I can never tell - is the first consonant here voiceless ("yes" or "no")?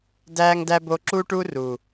no